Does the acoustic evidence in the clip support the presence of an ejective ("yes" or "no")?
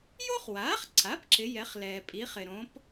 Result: yes